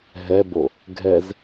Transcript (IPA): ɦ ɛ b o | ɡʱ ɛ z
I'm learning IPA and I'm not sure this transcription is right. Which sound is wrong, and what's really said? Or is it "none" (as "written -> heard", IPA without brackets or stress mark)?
none